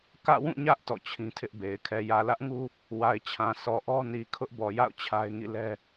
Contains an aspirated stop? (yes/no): yes